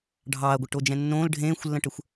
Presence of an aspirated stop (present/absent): absent